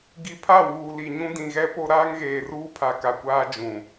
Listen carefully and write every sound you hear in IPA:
ɡi˨pʰa˦˨ wuː˨li˨ɲũ˦ dĩ˨ɣɛ˦ po˦ ɾaː˦ŋɣeː˨ruː˦pʰa˨ ka˨kʷaː˦ d͡ʒũ˨

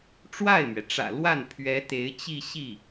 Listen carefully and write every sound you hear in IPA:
ʈ͡ʂwa˥˩ɪ̯mɥɛ˩ʈ͡ʂä̰˨˩ lwa˥˩npʰɥɛ˧˥ t̪e˧˥ɪ̯t͡ɕi˥˧ɕi˥˩

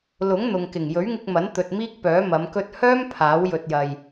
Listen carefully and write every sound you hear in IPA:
lʊ˨˥ŋn̪ʊ˨ŋ kɪ˨˩ŋ jɵ˨˥ɥŋɪ˧k̚mɐ˨˥n t̪ɵ˧t̚miː˥k̚pœː˨˥ mɐ˨˧mkɵ˧t̚ hœː˥m pʰaː˨˥w jɵ˧t̚jɐ˧j

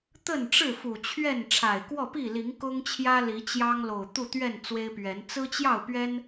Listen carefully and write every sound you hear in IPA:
t̪ə˥˨nʈ͡ʂɻ̩˥˨fu˨˩ t͡ɕʰɥɛ˥˨n ʈ͡ʂʰa˨˩ɪ̯kwɔ˥˨pi˥˨ li˨˦ŋkʊ˦ŋt͡ɕʰjä˦ li˨˦t͡ɕjɑ˦ŋlo˨˩ʊ̯ t̪u˥˨t̪ɥɛ˥˨n t͡swe˦ɪ̯pɥɛ˨˦n t͡sɹ̩˦t͡ɕjɑ˥˨ʊ̯pɥɛ˦n

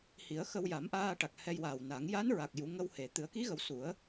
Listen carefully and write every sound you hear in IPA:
hi˨˩˦ə̯xə˧w ja˨˩˦mʔaː˧ ʈa˨˩k̚ hɛ˧jwaː˨˩wna˨˩˦ŋ ja˧˥nɹa˨˩k̚ ju˨˩˦ ŋə˧whe˨˩ t̪ɨ˨˩˦ə̯ki˧˥ɣə˨˩˦w su˨˩˦ə̯

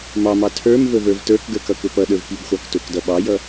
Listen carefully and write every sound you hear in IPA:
mɑmɑ tʰə˞m vəvə˞vtə˞kɡə˞k ʌkʊpʌɗə˞v pibχʷɑktʊkdʌ ɓɑjʌ

